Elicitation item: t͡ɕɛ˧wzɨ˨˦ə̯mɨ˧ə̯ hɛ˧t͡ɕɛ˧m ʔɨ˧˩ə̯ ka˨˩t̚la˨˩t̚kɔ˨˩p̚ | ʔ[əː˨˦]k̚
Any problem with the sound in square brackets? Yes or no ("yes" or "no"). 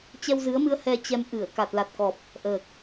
yes